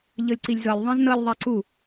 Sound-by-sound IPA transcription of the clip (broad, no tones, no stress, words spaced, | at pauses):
ʎɤlʲǀilʲzɤlʲ ðˤẽznɤlʲ ðˤaǀu